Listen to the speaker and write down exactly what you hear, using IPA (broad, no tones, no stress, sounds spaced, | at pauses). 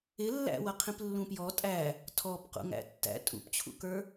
ɪ lː æ̰ w ʌ qʰ ĩ p lː ũ p j ɔ tʼ æ | tʰ ɔ p q ṵ ŋ æ̰ tː æ̰ tʼ ṵ p t͡ɕʰ ṵ k ə˞